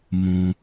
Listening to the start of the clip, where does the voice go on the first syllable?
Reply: low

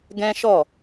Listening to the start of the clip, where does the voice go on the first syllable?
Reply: high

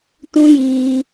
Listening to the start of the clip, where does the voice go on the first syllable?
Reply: high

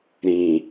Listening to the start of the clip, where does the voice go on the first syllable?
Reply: low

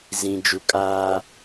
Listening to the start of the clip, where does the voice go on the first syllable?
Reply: low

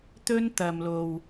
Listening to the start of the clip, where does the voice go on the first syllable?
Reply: high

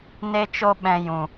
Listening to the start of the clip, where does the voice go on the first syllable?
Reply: high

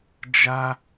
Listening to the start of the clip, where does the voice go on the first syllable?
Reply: high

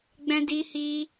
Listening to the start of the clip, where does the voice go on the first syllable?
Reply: high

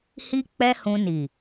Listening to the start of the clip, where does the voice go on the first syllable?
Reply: high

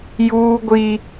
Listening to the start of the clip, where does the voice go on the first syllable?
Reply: high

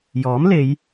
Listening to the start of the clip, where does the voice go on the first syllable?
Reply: rising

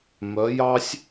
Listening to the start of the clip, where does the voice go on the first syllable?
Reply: rising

